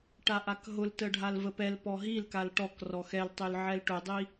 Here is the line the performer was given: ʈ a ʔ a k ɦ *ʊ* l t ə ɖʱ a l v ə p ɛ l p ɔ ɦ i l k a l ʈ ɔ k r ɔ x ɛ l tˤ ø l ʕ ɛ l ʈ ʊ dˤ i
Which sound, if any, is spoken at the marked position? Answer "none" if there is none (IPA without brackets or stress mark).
ʊ